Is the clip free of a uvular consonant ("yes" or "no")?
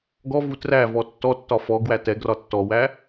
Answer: yes